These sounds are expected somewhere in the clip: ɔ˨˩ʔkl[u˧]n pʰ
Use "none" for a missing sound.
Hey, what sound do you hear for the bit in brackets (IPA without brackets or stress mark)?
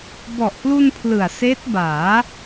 u˧